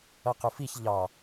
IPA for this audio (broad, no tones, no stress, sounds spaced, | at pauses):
ʌ q ʊ f i ç ʎ ɑ